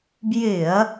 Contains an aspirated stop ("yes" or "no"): no